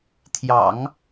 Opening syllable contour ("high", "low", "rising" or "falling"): low